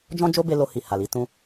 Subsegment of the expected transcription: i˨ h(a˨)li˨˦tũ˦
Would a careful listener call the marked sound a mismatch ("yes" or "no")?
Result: no